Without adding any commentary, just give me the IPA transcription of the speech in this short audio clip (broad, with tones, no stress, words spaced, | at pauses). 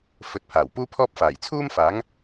fɵ˨˥t̚pʰaː˨˩wpuː˥pʰɔː˥p̚ faː˨˩jt͡sʰuː˥mfaː˨˥ŋ